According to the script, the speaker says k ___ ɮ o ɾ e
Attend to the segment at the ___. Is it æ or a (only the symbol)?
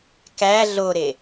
æ